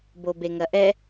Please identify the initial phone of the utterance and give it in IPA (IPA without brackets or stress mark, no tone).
b